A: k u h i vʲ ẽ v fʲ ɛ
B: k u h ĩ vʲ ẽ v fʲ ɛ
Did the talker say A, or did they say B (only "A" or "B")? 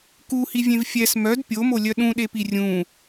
A